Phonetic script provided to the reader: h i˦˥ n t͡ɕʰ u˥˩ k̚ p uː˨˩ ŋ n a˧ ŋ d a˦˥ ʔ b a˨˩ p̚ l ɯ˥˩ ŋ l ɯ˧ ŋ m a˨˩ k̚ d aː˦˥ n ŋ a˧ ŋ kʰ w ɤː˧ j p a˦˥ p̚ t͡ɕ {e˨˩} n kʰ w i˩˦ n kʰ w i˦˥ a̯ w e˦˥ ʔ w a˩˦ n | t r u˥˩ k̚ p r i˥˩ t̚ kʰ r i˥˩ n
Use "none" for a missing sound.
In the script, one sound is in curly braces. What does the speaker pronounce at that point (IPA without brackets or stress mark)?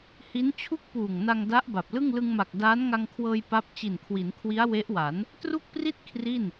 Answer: i˨˩